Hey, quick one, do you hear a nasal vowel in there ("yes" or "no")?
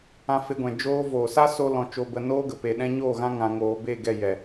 yes